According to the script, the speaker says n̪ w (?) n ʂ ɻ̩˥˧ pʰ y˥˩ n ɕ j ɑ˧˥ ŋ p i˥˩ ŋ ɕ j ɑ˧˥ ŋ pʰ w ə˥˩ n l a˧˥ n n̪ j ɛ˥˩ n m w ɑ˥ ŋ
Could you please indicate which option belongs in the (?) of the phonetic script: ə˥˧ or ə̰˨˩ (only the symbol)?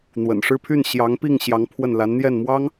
ə̰˨˩